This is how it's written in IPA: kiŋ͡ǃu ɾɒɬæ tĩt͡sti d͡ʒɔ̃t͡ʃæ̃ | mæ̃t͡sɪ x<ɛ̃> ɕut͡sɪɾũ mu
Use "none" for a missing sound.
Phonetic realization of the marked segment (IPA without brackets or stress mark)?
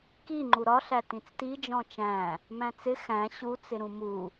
æ̃